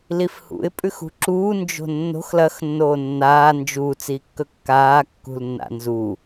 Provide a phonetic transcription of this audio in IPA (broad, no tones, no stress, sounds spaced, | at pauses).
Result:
l i f h ṵ ɪ̯ pʼ ʉ x ṳ ǁ uː n d͡ʒ o̤ nː o̤ x l ɐ x nː oː nː aː n d͡ʒ u t͡s iː kː ɵ kː aː kː ṳ l nː a̰ n z u